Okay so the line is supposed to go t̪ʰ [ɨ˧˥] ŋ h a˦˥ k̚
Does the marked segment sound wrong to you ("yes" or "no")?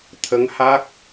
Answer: yes